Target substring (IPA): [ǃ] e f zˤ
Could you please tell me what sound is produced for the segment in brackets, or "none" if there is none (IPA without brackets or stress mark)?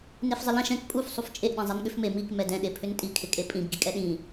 n